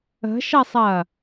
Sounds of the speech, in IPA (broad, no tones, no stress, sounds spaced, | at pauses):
ə̤ ʃ ɐ sˤ ɐː